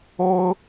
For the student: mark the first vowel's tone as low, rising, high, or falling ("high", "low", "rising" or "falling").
high